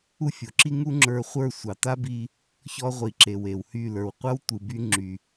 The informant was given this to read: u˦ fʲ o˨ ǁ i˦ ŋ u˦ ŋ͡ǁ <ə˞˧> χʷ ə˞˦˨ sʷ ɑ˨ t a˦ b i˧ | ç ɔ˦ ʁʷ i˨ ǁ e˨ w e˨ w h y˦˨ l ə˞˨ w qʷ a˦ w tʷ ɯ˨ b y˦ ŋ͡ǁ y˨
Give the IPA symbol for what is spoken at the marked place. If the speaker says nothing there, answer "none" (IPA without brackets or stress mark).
ə˞˧